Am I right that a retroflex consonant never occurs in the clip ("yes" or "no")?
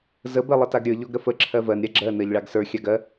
no